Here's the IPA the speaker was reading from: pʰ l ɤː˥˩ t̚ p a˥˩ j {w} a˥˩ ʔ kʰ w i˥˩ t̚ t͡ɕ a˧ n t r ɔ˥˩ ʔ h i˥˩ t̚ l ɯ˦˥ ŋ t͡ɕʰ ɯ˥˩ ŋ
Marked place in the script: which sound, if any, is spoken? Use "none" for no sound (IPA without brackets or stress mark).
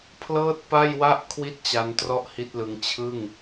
w